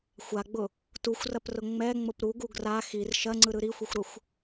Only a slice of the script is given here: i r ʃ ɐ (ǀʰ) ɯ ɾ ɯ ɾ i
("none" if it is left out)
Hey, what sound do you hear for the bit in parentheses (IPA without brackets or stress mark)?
ŋ͡ǀ